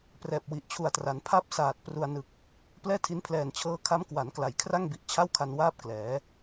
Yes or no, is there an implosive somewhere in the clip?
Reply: no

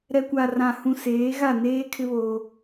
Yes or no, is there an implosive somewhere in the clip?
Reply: no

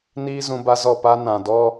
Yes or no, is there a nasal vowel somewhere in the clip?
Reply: yes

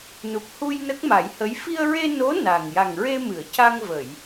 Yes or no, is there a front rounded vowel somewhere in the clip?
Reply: no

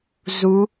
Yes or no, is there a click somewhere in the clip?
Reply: no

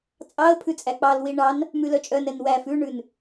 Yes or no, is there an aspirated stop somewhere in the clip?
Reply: yes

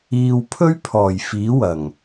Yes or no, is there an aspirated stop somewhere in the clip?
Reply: yes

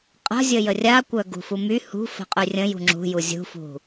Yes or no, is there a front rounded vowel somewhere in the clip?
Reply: yes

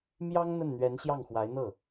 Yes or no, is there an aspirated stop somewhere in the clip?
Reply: no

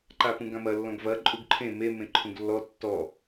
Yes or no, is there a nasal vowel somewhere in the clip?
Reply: yes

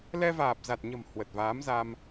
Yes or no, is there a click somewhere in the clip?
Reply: no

